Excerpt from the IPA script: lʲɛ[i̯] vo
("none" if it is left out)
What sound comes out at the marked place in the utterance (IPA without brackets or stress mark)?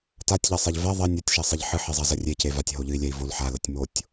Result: i̯